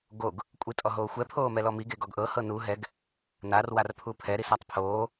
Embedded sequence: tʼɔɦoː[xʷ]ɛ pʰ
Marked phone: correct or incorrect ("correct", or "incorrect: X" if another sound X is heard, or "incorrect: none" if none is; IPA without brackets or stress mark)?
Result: correct